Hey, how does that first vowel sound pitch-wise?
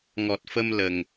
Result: low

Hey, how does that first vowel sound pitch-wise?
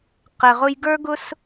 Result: low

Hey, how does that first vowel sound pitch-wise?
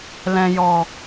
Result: low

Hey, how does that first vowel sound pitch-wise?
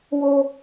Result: high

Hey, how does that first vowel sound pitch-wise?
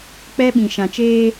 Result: high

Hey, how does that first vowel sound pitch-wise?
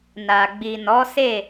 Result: low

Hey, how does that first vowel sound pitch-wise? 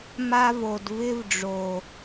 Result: high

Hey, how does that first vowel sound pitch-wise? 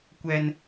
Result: high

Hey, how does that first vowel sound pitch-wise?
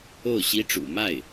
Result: falling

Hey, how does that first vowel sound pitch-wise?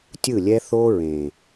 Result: falling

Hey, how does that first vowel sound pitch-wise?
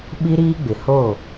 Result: high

